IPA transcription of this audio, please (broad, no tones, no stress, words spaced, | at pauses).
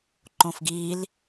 ǃõfɡil